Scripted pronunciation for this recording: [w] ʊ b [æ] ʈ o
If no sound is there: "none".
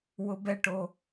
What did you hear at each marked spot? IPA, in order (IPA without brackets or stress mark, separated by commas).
w, ɛ